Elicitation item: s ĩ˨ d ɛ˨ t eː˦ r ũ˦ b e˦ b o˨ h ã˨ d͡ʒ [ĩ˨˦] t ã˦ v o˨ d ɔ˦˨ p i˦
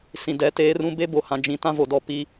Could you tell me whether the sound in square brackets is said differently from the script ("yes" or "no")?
no